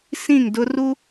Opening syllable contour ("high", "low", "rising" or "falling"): falling